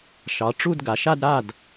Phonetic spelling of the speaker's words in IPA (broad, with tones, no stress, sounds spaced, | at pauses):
ʃ ɑ˩˧ ʈ͡ʂ u˥˧ d ɡ a˩˧ ʃ a˥˧ d ɾ a˥˩ d